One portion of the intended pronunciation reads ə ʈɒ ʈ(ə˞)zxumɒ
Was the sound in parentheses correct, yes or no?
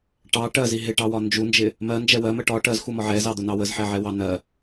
no